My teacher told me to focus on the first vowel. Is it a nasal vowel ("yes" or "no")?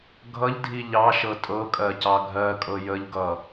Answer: no